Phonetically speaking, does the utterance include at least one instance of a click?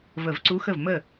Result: yes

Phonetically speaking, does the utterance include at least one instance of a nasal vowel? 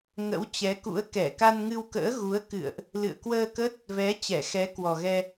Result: no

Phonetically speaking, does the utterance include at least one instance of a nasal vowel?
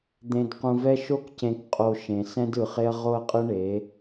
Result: yes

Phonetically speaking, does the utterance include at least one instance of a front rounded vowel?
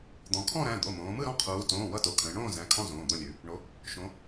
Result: no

